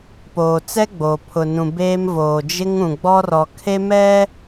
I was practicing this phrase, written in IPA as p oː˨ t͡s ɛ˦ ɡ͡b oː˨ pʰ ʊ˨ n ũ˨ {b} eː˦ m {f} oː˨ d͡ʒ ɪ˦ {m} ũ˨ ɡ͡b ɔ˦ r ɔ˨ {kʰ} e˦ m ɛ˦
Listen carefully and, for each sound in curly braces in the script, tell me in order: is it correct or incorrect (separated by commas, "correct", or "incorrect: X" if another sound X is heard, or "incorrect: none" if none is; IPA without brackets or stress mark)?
correct, incorrect: v, incorrect: ŋ, correct